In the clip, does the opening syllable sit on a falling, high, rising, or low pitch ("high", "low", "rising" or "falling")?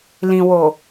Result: low